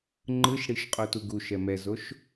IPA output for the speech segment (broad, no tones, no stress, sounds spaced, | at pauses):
ŋ͡ǃ ɯ ʃ ɽ i ʃ qʼ o t u ɡ u ʃ ɛ m ɛ z o ʃ